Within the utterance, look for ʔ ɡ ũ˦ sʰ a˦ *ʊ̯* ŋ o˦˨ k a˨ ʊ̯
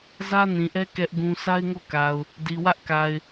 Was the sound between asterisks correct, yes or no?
no